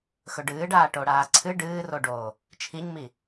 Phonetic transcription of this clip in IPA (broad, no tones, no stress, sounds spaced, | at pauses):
x ɵ ɖ ɨː ɖ aː ʈ o ɽ aː ǀʰ ɨ ɖ ɨː r o ɖ oː | t͡ʃʰ i ɲ m i